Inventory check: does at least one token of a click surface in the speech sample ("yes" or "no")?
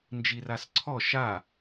yes